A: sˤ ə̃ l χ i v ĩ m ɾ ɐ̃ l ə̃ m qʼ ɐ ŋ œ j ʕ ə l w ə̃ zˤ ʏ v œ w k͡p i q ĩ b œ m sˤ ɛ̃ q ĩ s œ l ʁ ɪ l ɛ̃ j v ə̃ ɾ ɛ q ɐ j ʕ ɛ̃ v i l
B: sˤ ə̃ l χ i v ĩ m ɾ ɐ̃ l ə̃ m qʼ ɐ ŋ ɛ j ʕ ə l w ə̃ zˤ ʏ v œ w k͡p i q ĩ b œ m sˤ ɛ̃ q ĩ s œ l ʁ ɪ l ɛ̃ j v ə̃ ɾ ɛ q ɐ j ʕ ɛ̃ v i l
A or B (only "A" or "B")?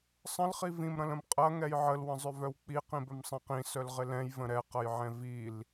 B